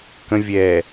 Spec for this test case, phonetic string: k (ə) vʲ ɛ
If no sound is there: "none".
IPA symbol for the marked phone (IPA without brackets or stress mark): ə̃